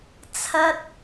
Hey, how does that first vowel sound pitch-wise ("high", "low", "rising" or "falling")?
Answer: high